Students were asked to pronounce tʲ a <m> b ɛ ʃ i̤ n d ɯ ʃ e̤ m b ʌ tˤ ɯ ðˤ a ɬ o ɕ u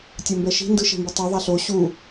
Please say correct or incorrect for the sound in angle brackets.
correct